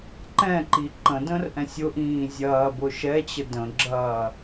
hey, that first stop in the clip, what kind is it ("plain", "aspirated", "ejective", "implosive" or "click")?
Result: click